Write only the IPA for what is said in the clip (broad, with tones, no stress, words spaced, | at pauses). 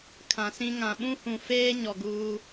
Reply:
kʰã˨sĩ˦ ŋã˨ɓũ˦hũ˨feː˦ ɲɔ˨ɡuː˦